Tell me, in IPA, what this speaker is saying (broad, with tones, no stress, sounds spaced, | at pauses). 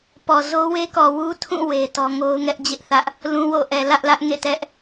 p ɔ˨ z o˦ w e˦ k ɔ˨ w u˦ tʰ ũ˦˨ w e˦ t ɔ˦ ŋ o˦ ʊ̯ ŋ ɛ˦ ʔ d͡ʑ ɪ˦ ʔ θ ä˦ ʔ | l ũ˦ w o̰˦˨ ʔ ɛ˨ l ä˦ ʔ l ä˦ ʔ ŋ ḛ˦˨ t ɛ˦ ʔ